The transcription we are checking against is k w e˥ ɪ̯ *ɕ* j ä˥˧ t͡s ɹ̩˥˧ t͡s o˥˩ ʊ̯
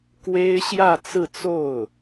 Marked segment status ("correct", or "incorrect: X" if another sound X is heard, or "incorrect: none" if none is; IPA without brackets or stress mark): correct